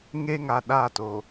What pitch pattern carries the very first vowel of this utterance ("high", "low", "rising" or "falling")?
high